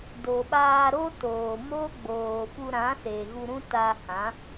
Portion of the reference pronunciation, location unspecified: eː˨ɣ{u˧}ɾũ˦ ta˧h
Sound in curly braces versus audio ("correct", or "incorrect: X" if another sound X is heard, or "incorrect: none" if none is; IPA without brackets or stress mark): correct